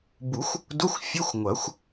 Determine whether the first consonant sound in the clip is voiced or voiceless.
voiced